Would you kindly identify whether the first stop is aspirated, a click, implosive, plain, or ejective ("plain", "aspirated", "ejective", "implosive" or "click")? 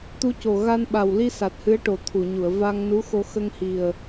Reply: plain